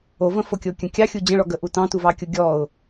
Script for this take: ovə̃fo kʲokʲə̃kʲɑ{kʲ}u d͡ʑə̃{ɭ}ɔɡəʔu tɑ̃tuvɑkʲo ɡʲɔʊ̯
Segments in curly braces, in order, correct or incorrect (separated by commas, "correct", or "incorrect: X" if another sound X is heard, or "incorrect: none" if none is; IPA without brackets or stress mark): incorrect: xʲ, correct